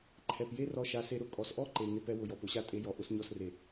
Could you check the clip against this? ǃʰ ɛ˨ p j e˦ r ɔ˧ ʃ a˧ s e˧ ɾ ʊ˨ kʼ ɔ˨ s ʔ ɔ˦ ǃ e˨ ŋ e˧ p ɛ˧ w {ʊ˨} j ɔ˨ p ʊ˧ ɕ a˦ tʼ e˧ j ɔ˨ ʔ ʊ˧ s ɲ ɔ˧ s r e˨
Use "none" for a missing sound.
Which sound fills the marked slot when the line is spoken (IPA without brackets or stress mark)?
ʊ˨